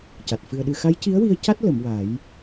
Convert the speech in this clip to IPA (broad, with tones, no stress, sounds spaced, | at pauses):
c a˨˩ t̚ f ɨ˧ ə̯ ɗ ɨ˧ x a˧˥ j c i˧˥ ə̯ w i˧ ə̯ c a˦˥ t̚ l ə˨˩˨ m w a˨˩˦ j